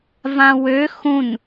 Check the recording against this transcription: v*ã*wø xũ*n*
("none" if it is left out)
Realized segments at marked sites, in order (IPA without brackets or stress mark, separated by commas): ã, n